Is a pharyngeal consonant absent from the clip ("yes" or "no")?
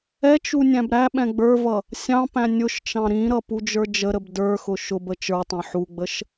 no